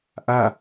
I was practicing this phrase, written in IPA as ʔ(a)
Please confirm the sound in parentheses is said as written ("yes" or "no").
yes